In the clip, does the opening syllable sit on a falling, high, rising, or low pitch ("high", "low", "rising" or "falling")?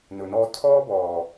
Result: low